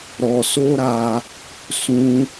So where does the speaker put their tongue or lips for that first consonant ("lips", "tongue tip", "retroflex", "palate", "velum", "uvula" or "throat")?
tongue tip